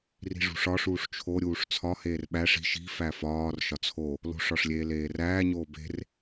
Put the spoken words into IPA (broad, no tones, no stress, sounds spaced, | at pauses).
r i̤ ʐ ṳ ʂ ɒ ʂ uː ʂ t͡ʃʰ o ɾʲ uː ʂ t͡sʰ ɒ h eː r ɓ æ ʂ i̤ ʃ i̤ f æ f ɒː r ʃ ɒ t͡sʰ o | l o̤ ʂ ɒ ʂ lʲ eː l eː r æː ɲ oː b e̤ r